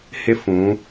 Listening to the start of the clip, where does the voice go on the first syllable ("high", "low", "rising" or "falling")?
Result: high